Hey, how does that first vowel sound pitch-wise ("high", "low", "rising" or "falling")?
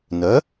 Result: rising